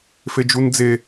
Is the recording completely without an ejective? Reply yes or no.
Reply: yes